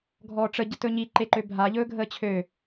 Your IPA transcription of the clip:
ɡʱ ɔː ʈ͡ʂ ə ɟ ə t ɵ ɲ i ǃ e ǃ ø bʱ a ʎ ɵː ɡʱ əː t͡ɕʰ ø

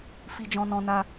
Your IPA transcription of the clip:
f i˧ d͡ʒ ɔ̃˧ n ɔ̃˧ n a˧

